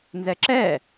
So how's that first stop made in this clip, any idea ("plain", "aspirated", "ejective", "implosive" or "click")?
click